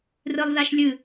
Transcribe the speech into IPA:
r ɨ lˠ ð a ʃ lʲ ɨ

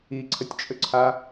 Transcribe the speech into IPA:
i ǀʰ ə tʲ t͡ʃʼ ø ǀʰ a

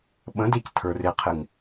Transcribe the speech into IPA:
ɓ ə̃ d e c tʰ ə˞ r ɪ qʰ ɪ ŋ

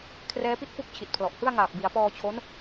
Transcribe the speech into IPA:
kʰ r ɛː˦˥ p i˥˩ t̚ f u˥˩ k̚ t͡ɕʰ i˨˩ t̚ pʰ l ɔ˨˩ ʔ h ɯ˥˩ a̯ ŋ aː˨˩ p̚ b i˩˦ a̯ p ɔː˧ t͡ɕʰ o˦˥ n

